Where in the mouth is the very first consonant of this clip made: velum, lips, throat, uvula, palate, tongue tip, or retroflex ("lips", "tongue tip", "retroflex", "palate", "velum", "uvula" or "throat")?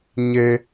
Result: palate